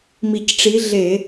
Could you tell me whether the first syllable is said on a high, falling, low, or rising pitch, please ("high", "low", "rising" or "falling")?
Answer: low